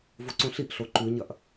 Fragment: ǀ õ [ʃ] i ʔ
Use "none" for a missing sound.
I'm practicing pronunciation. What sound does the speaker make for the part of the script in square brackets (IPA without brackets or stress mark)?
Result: ɬ